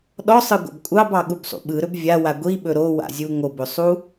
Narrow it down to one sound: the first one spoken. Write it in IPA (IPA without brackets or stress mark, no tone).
ɗ